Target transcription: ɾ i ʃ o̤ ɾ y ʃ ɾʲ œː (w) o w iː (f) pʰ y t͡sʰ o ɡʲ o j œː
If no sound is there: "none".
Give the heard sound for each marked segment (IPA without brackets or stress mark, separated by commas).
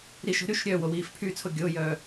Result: w, f